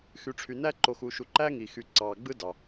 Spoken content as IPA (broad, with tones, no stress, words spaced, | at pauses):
xy˨ʈ͡ʂʰy˨næ˥ ǃo˨xu˨ʃu˨ ǃæ˥ŋi˩xy˨ǀɑː˩ ɡ͡bɯ˦dɑ˩